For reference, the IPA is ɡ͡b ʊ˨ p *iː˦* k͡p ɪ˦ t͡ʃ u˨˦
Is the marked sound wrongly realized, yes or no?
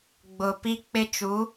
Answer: yes